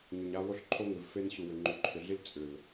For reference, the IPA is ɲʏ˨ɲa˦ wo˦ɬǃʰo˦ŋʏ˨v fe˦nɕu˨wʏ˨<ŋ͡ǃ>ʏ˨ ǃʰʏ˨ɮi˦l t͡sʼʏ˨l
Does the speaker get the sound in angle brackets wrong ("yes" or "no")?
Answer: no